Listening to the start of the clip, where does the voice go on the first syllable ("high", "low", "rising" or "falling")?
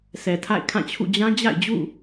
low